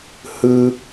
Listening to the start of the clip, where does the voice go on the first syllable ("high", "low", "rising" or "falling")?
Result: high